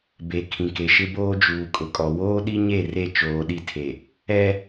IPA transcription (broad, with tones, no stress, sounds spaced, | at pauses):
b e˨ kʰ ĩ˨ k e˨ ʃ ɪ˦ b oː˦ d͡ʒ uː˨ kʼ ʊ˨ kʼ ɔ˨ w oː˦ ɗ i˦ ɲ e˦˨ r e˦˨ t͡ʃ oː˨ ɗ i˦˨ tʰ e˨ | ɛ˦